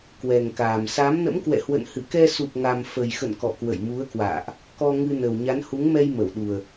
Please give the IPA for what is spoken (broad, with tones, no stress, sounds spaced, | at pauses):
k w ɛ˨˩ ŋ k aː˨˩ m s a˨˦ m n ə̰˧˥ m k w ɛ̰˧˨ h w ə̰˧˨ n h ɨ˧˩ k ɛ˧ s u˨˩ p̚ ŋ a˨˩ m f ə˨˩ j x ə̰˧˨ n k ɔ̰˧˨ k w ə̰˧˨ j m u˨˦ ə̯ k w a̰ː˧˨ ʔ | k ɔ˧ ŋ ɨ˧ n ə˨˩ w ɲ a˨˦ n h u˨˦ ŋ m ɛ˧ j m ə˧˩ w ɗ u˨˩ ə̯